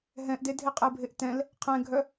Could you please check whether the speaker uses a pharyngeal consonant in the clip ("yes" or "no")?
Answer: no